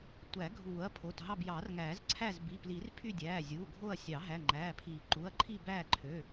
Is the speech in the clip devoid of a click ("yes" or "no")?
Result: no